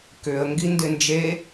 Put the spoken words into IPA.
k ʏ ə̯ ŋ ɡ i n d ɪ n d͡ʒ e

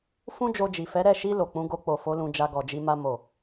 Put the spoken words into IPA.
f ũ˦ d͡ʒ o˧ d͡ʒ i˨ f ɛ˨˦ ɾ ɛ˦˨ ʃ i˧ l o˨ k͡p ũ˨˦ ɡ o˧ k͡p o˨ f o˨˦ l ũ˧ d͡ʒ a˧ ɡ ɔ˨ d͡ʒ i˧ m a˦ m o˦˨

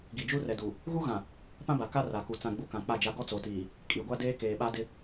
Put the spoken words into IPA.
ɡ i˨ d͡ʒ u˦ r ɛ˨ d u˨ | ɣ u˦ ɣ ã˨ | p ã˦ b a˨ k a˦ r a˨ k u˨ t͡s ã˨ ɡ͡b u˨ k ã˨ k͡p a˦˨ d͡ʒ a˦ ɡ ɔ˦ t͡s o˨ t iː˨ | kʼ i˨ ɡʷ a˦ d eː˦ k eː˨ ɓ a˦ d ɪ˦

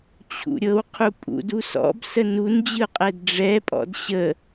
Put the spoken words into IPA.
t͡ɕʰ ṵ ɾʲ ɤ w qʰ u pʼ ṵ d u s ɔ̰ b s ə n u n d͡ʑ ɯ qʼ ɛ d ɖ͡ʐ ɛ pʼ ɔ̰ d ɕ ə

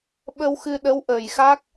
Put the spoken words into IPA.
ɓ ə˧ w x ɨ˧ ɗ ə˧˥ w ʔ əː˨˩ j x a˦˥ k̚

